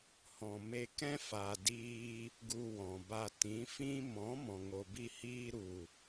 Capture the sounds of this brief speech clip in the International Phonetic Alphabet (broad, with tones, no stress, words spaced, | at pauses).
hɔ̃˨me˧ kɛ̃˦ fa˨ diː˧ | ɡu˧wɔ̃˨ba˧ tĩ˨˦ fĩ˦ mɔ̃˨˦mɔ̃˨ŋo˨bi˧ hiː˧ɾu˨